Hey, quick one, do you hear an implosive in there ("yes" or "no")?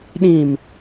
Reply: yes